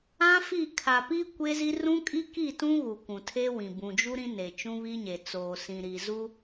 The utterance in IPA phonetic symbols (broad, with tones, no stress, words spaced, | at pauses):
ã˦ fi˦˨ kʰa˨piː˦ kʷe˦zi˦ rũ˦kʼi˦ki˦˨tũ˦ ɣu˨kʷũ˨tʰe˦wĩ˨ bũ˨d͡ʒu˦ ɾĩ˦ ne˨ t͡ʃũ˦βi˦ɲe˨ t͡soː˨sĩ˨ ɾi˨zu˦